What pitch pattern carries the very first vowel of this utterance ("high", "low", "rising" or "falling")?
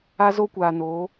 high